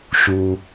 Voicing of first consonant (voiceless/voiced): voiceless